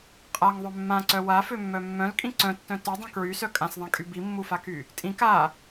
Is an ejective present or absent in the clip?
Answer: present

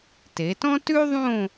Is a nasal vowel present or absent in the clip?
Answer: present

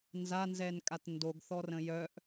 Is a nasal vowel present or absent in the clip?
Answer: present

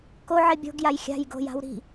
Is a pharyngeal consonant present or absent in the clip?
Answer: present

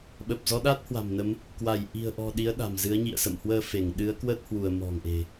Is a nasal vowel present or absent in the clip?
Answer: absent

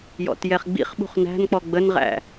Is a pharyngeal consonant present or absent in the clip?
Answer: absent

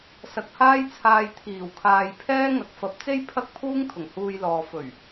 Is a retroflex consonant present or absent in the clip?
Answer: absent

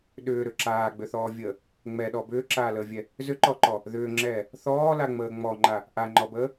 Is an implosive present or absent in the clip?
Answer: present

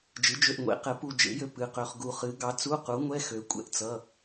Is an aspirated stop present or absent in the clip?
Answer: absent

